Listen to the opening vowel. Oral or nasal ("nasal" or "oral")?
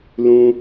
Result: nasal